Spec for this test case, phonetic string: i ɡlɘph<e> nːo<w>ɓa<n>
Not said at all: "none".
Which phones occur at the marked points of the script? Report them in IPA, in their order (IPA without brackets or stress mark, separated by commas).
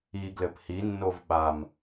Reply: i, v, m